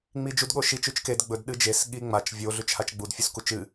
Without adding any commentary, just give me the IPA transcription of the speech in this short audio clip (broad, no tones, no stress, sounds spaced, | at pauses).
ŋ͡m i d͡ʒ u d ɠ o ʃ i t͡ʃ ʉ t͡ʃ k e d ɡ͡b ɵ d ɗ ɨ d͡ʒ e s ɠ i ŋ͡m a t͡ʃ vʲ o ɮ ʉ t͡ʃ h a t͡ʃ ɡ͡b u d fʲ u s k u t͡ʃ ɨ